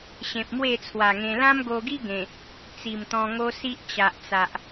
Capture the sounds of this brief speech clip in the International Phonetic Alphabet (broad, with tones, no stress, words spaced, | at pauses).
ɕẽ˨p̚mwe˥˧ t͡sʰwa˨˩ŋẽ˧ lã˦mɡo˧ɡi˦ ɡẽ˨˩ | t͡si˨˩mt̪ɔ̃˧ŋo˦si˦ʔ t͡ɕa˨ʔt͡sa˨ʔ